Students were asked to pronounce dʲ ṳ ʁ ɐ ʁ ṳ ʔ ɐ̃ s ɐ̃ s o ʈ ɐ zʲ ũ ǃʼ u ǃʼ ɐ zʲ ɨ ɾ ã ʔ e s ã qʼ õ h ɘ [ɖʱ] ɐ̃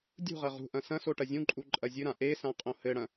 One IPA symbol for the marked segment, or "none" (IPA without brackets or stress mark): ɽ